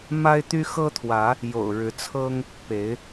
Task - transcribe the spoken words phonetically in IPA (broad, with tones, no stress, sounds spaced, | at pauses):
m a˦ ɪ̯ t̪ y˦ x ɤ˦ t̪ʰ w ä˨˦ | j o̰˨˩ ʊ̯ ɻ ɻ̩˨˦ t͡sʰ ɤ˦ ŋ | p e˨˦ ɪ̯